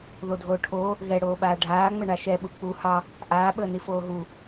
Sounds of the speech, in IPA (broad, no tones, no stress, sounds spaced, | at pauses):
ð o dʱ oː ʈʰ oː | ɣ ɛ ɽ oː ɓ aː ɖʱ aː ŋ͡m ə ɳ a ʃ ɛ ɓ u k͡p u h ɑ | ʔ aː ɓ əː n i f oː ɦ u